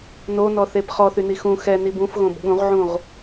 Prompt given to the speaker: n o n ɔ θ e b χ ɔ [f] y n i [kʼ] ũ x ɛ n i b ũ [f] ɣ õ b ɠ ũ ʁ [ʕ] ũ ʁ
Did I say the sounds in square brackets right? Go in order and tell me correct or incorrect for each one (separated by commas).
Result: incorrect, incorrect, correct, correct